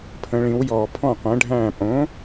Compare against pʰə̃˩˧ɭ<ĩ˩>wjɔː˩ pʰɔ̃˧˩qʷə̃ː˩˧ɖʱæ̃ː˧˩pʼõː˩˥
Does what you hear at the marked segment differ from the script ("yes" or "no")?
yes